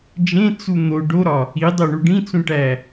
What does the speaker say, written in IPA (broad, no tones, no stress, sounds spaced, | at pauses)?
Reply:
d͡ʒ ẽ t͡s u n̪ o ɖ o ɾ ɒ | i dˤ o ɳ u ɖ ĩ t͡s ũ ʈ æ